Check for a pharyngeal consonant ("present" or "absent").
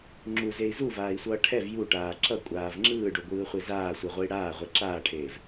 absent